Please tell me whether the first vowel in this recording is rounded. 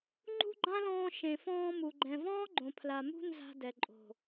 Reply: yes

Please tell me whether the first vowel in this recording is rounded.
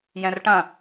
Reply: no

